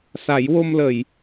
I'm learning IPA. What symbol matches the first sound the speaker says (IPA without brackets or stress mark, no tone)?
s